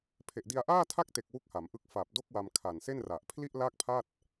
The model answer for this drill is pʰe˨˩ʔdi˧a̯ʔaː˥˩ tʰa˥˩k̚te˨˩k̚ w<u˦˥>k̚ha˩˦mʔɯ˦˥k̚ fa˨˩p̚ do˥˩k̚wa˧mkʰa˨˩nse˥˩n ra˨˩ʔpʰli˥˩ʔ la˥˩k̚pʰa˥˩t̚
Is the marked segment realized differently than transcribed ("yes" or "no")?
no